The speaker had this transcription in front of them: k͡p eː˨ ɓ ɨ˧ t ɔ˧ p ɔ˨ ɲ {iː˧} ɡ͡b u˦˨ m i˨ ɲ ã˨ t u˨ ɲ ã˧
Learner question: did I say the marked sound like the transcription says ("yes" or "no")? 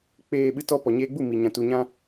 no